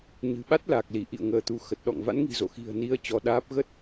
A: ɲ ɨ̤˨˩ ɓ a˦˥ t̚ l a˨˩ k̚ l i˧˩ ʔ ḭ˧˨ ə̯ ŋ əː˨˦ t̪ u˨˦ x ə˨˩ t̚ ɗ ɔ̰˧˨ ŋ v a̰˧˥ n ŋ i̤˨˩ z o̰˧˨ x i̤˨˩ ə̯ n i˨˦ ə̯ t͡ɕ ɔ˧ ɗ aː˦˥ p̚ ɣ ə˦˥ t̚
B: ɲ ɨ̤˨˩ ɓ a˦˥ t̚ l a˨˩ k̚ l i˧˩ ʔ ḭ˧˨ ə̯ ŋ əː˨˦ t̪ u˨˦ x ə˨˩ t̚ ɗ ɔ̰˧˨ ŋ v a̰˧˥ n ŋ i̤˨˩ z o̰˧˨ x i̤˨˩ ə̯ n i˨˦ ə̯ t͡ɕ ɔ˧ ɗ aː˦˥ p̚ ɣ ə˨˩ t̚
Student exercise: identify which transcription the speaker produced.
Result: A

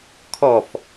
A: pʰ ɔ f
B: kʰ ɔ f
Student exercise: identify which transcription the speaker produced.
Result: B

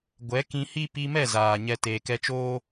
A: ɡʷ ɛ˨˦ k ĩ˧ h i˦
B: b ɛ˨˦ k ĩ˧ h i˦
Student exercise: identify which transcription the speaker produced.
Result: A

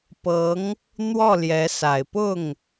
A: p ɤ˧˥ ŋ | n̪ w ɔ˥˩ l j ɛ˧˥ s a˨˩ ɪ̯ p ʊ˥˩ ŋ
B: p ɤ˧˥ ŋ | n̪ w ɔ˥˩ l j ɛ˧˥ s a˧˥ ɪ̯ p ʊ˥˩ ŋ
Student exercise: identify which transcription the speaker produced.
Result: A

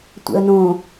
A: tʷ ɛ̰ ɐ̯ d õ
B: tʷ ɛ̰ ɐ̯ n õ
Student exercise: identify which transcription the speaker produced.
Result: B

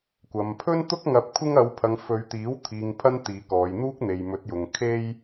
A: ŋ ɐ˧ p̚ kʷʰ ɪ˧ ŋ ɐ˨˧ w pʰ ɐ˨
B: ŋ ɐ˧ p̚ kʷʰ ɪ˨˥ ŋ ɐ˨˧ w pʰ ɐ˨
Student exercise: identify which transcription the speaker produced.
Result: A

